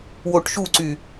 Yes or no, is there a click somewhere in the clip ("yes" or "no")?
yes